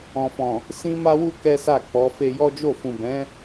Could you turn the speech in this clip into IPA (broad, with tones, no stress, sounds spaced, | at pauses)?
ɔ̃˨ f ɔ̃˨ | s ĩ˦ m a˦ w u˦ k ɛ˦ s a˦˨ k͡p ɔ˨˦ f e˧ j ɔ˦ d͡ʒ o˦˨ f ũ˨ b ɛ̃˨˦